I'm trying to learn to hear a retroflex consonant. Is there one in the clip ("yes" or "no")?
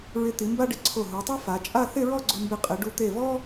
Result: yes